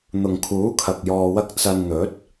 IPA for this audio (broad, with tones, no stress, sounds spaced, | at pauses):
n̪ ʊ˨ ŋ kʰ uː˨˥ kʰ ɐ˨ k̚ j ɔː˧ w ɐ˥ k̚ t͡s ɐ˧ n n̪ ɵ˨˥ t̚